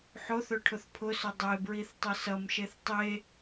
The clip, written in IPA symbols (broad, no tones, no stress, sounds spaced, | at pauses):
ħ o θ ɵ ʈʰ ʊ θ pʰ ʊ s ɵ dˤ e b ɹ i θ tˤ ʌ s ʌ m ʃ e θ tˤ e